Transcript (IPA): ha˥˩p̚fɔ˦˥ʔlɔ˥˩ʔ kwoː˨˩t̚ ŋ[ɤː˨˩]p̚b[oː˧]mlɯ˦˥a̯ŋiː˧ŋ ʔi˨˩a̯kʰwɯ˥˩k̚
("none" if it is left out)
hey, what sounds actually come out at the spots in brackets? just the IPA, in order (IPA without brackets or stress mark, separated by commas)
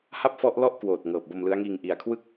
ɤː˨˩, o˧